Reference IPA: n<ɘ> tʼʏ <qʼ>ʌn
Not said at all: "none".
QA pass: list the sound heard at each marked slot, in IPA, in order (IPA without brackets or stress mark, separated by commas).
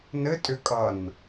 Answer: ɘ, kʼ